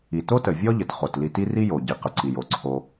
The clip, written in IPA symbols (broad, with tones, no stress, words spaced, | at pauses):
i˩ to˥tə˩ vʲɔ˥ ʎə˩tχo˩tli˧ti˥ ri˥jo˩ ɟi˩ qə˩ǀi˩jo˩ ǀʰo˧